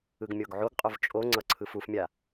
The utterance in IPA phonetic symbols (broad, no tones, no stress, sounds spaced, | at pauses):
ɯ ɡ mʲ o ɡ ʕ o ɡ qʼ o v t͡ʃʼ o ŋ͡ǀ ʌ ǀʰ ɯ f u f mʲ a